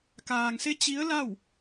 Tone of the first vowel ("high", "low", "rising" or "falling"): low